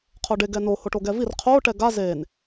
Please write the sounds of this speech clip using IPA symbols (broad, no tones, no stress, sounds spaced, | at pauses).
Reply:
qʰ o ɖ e ɡ ɛ n o h o ʈ o ɡ ɛ v i r qʰ o ʈ ɛ ɡ a z e n